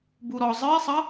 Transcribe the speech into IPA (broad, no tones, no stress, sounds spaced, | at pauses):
b u ɾ ɔ zˤ ɨ e̯ sˤ ɐ